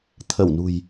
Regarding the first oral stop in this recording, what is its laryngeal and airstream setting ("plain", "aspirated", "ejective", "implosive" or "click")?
aspirated